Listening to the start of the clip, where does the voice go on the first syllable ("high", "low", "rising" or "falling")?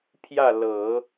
falling